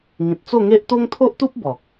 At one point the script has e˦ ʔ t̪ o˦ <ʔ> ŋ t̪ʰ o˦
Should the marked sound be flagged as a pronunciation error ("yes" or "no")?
yes